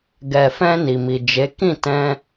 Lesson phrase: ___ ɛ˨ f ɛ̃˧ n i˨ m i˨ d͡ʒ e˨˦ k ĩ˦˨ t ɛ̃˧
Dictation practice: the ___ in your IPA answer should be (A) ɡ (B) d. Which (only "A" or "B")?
A